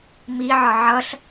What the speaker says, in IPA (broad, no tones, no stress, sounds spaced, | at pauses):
m i ʕ ɒ ʕ ʌ ɬ